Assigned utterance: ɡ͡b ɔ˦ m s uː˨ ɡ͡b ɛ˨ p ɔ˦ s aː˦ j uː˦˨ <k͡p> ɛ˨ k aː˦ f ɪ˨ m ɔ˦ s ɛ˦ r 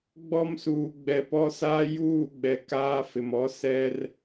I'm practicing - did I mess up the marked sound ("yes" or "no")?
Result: yes